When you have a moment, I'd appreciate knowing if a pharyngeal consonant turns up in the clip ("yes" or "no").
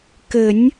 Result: no